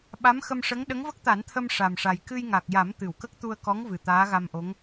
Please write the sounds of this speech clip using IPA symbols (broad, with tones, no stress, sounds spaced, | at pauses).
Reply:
ɓ a˧˥ m x ə˧ m ʂ ə˧˥ ŋ ɗ ə˧˥ ŋ v ə˦˥ k̚ t̪ a˨˩˦ n t̪ʰ ə˧ m ʂ a˨˩ m ʂ a˨˩ j k ɨ˧ j ŋ a˨˩ k̚ j a˨˩˦ m t̪ ɨ˨˩˨ w k ə˦˥ k̚ t̪ u˧ ə̯ k ɔ˧˥ ŋ v ɨ˨˩ t̪ aː˧˥ ɣ a˧ m ʔ o˧˥ ŋ